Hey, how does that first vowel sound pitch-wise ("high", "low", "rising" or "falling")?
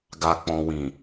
low